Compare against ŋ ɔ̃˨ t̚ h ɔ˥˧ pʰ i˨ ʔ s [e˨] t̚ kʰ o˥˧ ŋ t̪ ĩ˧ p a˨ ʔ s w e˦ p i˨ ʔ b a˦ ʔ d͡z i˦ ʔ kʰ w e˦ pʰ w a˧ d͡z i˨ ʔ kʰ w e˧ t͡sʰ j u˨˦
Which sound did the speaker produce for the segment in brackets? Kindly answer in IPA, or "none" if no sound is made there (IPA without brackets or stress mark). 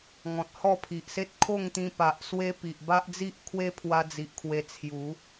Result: e˦